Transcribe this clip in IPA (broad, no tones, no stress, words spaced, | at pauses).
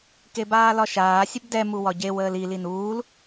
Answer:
kebaːlɒʃaː sʲəbdɛ muwɒɟew əːli linuːl